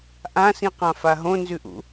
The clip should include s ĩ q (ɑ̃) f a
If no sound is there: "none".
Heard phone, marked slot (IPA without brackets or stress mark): ã